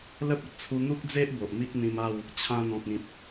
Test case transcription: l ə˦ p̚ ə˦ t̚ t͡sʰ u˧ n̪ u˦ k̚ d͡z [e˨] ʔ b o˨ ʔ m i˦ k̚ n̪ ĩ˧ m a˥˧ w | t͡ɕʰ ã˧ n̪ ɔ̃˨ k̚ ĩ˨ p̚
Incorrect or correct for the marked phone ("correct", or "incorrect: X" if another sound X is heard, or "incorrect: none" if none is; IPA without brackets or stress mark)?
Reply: incorrect: e˦